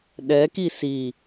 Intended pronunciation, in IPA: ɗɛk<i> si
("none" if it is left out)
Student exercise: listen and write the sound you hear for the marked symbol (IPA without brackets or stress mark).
i